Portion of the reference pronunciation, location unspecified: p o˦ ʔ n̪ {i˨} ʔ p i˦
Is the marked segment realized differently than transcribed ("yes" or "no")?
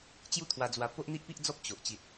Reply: yes